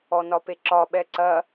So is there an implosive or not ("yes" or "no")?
yes